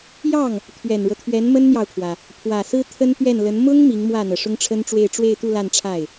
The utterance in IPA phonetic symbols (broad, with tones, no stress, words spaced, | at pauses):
jɑ˥˩ŋ | t̪ʰɥɛ˨˩nɻɤ˦t̪ʰɥɛ˧˥n mə˥nn̪jɑ˨ʊ̯kʰwä˩ | pʰwä˨˩sɹ̩˥ t̪ʰə˥n t̪ɥɛ˥˩nlə˧˥n mʊ˥ŋ mi˧˥ŋmwä˥˩n̪ɤ˩ ʂʊ˥ŋʈ͡ʂʰə˥nʈ͡ʂwe˥˧ɪ̯ ʈ͡ʂwe˥˧ɪ̯t̪u˥˧ la˥˧nʈ͡ʂʰa˥˩ɪ̯